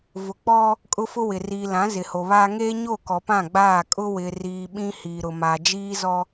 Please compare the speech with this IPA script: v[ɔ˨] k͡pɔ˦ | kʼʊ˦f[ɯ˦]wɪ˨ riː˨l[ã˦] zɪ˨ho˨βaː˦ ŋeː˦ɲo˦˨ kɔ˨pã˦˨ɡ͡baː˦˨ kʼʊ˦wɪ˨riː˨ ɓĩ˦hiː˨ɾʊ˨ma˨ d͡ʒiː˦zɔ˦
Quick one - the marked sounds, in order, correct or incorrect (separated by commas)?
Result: incorrect, incorrect, incorrect